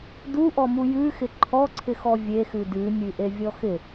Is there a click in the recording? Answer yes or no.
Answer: yes